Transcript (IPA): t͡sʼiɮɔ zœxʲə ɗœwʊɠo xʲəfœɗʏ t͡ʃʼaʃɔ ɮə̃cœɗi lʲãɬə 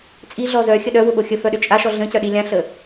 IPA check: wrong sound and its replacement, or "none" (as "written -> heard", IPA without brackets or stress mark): none